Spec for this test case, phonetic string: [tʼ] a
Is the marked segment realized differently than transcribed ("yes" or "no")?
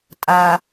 no